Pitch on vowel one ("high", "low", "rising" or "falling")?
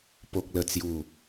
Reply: low